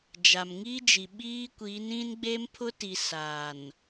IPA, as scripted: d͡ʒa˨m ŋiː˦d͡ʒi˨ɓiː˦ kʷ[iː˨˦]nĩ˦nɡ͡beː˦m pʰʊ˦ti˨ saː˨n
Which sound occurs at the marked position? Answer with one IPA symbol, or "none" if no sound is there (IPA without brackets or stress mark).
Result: iː˨˦